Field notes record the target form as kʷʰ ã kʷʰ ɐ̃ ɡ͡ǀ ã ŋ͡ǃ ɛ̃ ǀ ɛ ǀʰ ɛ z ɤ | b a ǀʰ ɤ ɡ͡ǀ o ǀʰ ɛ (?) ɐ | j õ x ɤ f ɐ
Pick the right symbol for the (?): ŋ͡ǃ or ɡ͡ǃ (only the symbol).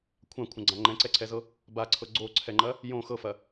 ŋ͡ǃ